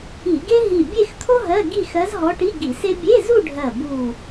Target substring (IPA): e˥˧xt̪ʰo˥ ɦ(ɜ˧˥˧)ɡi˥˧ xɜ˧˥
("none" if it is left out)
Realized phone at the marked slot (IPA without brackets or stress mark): ɜ˧˥˧